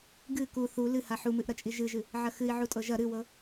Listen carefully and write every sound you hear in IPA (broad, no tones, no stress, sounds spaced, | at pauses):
ɡ ɨ k u θ u l ɨ h a ħ u m ɨ ʔ ɾ ɐ t͡ʃʼ i ʒ ɨ ʒ ɨ | ʕ ɐ x ɨ i̯ ʕ u tʼ ɤ ʒ ɐ ɾ ɨ w ɤ